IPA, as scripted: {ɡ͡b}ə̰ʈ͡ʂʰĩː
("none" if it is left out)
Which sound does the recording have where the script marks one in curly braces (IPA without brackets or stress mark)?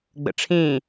ɡ͡b